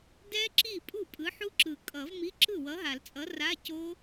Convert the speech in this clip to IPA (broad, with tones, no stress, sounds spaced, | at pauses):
d ɛ˦˥ ǁ i˥˩ pʼ u˥˩ pʼ ɯ˨˥ ħ u˦˥ ǁ ɯ˨˩˦ kʼ ʌ˨˩˦ v m i˧˥˧ ǁ ɯ˥˩ w ʌ˨˥ ɦ a˨˩˦ l t͡sʼ ʌ˨˥ r a˧˥˧ c o˦˥